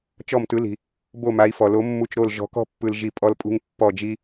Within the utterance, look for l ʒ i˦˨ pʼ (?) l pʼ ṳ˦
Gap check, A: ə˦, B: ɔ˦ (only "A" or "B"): B